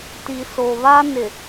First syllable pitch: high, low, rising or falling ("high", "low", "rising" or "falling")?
low